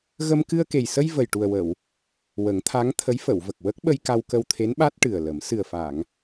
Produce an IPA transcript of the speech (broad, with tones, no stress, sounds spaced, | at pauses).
ɣ ə˧ m k ɨ˧ ə̯ k e˨˩ j s ə˧ j v ə˨˩ j ʈ u˨˩ ə̯ w ə˨˩˨ w | w ə˨˩˦ ŋ t̪ʰ a˧˥ ŋ t̪ʰ ə˧˥ j f ə˨˩˨ w v ə˨˩ k̚ w ə˦˥ k̚ ɓ ə˧ j k a˧ w k ə˧ w t̪ʰ e˧˥ n ɓ a˦˥ t̚ ʈ ɨ˨˩ ə̯ l ə˨˩˦ m s ɨ˨˩ ə̯ f a˨˩˨ ŋ